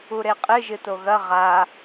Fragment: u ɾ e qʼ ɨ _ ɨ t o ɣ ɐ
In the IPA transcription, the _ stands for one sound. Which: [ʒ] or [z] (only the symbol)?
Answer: ʒ